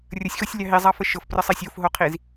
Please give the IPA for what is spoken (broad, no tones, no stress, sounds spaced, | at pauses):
rʲ ə sʲ x o sʲ lʲ ɑ ɦ i zˤ ɑ f ə ʃ ɤ f p r ə sˤ i sʲ o f ɦ o qʰ i z